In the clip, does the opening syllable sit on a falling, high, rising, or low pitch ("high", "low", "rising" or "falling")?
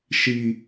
low